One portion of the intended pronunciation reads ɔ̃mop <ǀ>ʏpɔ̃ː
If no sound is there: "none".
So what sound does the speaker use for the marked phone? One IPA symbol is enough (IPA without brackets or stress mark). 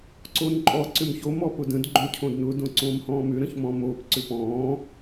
ǀ